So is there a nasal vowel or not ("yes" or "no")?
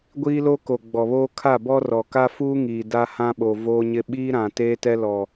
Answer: yes